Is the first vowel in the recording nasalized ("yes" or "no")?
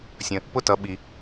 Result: yes